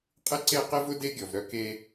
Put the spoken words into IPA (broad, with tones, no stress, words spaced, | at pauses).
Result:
qʼɪ˦ǀe˦qe˦vʊ˦ de˦ɡʲɔ˨vɾœ˦ke˦